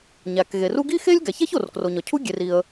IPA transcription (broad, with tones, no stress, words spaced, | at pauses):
ɲæ˩kɣe˩ru˥ ɡi˥xe˥lʲ ɡæ˩çæ˥ç o˩rkro˩ɲɒ˩ cʰu˥ɡʲe˩r i˩ə̯